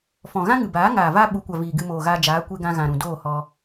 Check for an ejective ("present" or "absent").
absent